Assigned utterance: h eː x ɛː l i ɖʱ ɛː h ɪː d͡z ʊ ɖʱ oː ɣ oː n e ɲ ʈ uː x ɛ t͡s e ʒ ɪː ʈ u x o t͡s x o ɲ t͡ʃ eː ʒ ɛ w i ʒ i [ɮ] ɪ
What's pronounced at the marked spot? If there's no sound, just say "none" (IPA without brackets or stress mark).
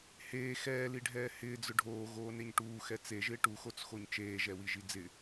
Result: d͡z